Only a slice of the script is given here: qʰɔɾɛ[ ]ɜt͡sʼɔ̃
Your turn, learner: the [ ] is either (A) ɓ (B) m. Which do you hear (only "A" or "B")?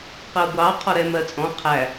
B